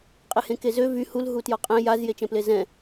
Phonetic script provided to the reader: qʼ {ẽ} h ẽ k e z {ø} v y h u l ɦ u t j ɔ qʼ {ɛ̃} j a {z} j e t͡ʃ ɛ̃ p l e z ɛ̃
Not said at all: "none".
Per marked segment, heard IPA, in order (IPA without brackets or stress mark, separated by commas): e, ø, ɛ̃, z